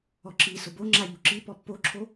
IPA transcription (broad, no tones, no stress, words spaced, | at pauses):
ɔǁi sʊboŋ͡ǁaʎu ǁi pɔpːoǁʰo